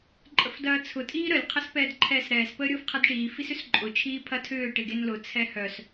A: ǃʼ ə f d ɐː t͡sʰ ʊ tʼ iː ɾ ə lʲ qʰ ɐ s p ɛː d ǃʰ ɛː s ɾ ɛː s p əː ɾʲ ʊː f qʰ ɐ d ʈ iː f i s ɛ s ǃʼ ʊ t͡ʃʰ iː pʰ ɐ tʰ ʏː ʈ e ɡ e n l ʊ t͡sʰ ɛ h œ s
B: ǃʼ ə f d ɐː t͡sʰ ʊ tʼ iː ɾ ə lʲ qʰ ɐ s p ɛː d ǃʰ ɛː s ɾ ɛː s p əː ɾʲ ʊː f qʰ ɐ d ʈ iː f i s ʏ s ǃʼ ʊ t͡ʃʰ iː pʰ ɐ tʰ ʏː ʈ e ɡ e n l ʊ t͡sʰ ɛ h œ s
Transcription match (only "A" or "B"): B